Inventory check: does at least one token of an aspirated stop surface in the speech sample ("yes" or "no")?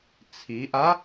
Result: yes